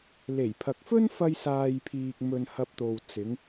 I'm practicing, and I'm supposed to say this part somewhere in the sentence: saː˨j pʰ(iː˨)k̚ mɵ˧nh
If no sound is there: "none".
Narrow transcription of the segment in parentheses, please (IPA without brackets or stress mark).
iː˨